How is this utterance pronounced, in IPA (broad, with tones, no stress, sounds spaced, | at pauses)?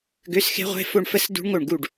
ɡ ø˧˥˧ s x e̤˦˥ ʁʷ e̤˧˥˧ f o˥˧ ɳ f ə˥˧ s d ṳ˦˥ ɳ ŋ o˥˩ ɳ ɡ u˥˩ ɖ